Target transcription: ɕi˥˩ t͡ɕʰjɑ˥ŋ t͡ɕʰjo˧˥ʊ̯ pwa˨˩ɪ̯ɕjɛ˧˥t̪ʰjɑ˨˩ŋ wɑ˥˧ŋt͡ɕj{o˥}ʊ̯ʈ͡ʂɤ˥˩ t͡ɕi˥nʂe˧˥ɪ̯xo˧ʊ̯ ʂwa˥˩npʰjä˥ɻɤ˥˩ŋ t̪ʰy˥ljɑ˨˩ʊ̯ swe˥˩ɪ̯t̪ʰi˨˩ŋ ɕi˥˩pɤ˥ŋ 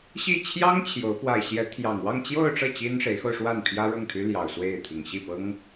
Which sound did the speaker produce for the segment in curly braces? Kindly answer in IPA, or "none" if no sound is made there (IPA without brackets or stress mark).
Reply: o˥˧